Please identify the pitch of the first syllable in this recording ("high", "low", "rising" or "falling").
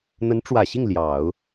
rising